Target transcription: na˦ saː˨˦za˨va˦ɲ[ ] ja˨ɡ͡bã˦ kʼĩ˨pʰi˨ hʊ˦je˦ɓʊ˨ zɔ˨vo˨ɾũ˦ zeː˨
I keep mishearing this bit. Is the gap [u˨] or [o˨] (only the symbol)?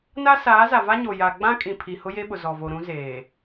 o˨